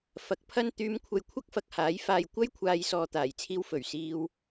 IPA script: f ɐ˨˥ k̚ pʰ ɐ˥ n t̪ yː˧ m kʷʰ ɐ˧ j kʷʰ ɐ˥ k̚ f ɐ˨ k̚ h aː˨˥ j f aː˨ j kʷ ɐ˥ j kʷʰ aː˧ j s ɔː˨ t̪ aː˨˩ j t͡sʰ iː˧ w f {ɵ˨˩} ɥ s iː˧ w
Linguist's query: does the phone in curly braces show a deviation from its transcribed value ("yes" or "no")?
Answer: no